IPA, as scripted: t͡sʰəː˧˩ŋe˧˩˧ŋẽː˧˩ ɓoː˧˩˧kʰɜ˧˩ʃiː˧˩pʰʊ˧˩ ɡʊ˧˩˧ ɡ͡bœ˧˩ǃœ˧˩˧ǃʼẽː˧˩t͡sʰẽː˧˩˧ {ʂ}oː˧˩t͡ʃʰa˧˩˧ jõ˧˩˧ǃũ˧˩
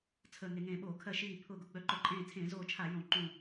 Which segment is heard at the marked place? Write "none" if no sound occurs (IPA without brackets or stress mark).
z